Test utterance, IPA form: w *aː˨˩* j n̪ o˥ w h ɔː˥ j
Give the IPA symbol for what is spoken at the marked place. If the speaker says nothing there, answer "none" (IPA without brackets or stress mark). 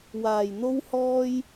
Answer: aː˨˩